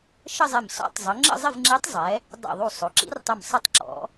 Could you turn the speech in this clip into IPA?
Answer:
ʃ ə˥˧ zˤ ɪ˧˩ m s ɔ̰˧˥ tˤ zˤ ə˩˧ ŋ͡ǁ ə̰˥˧ zˤ ɪ˥˧ v ŋ͡ǁ i˧˥ tˤ zˤ ɛ˩˧ | dˤ ḭ˧˩ ðˤ u˧˩ sˤ o˩˧ ǁ ḭ˧˥ r tˤ ɘ˧˩ m sˤ ʌ˥ tˤ ǁ ɔ̰˧˥

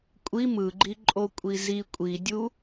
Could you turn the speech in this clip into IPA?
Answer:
kʷʼ i m ɯ ɡ͡ǃ i ǃʼ o kʷʼ i z i kʷʼ i dʲ u

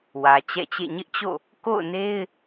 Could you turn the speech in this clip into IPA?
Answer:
w ä˨ t͡ɕ ɛ̰˦˨ t͡ɕ ḛ˦˨ ɲ ɪ˦ ʔ t͡ɕ o̰˦˨ | k o̰˦˨ ʊ̯ n e˦ ɪ̯

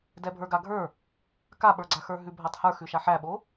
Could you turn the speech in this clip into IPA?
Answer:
d ɛ bʱ ə˞ ɡ a ɡʱ ə˞ | k a ɓ ə˞ ɡ͡ǀ a x ə˞ ɦ ʉ bʱ æ tˤ h ə˞ x ʉ ʃ a ħ æ ɓ o

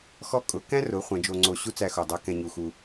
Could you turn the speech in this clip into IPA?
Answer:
x ɔ˥ kʼ ʊ˩˧ k æ̃˥ r ʊ˩˧ χʷ ɛ̃˩˧ d͡ʒ o˧ ŋ͡ǀ o˧ ɕ u˥ t͡s æ˧ x o˩ dˤ æ˥ k ɛ̃˧ ɲ u˩ x u˩

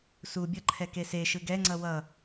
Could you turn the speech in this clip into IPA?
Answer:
s u bʲ ʌ ǃʰ ɛ k e s e ʃ ɯ ɡ ɛ ŋ͡ǀ ʌ w ʌ

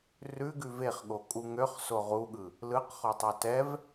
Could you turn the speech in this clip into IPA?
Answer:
r ʉ ɡ ʉ v e χ ɠ o kʼ u ŋ ø χ s o ʁ u ɠ ɯ | l ɯ q χ o tˤ a t ɛ v

